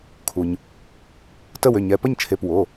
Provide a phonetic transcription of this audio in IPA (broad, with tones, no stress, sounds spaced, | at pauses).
kʰ u˩ ɲ | t ə˥˨ w ʏ˩˧˩ ɲ ɛ˩˧˩ p ə˥˨ ɲ t͡ʃʰ e˩˧˩ p w o˩˧˩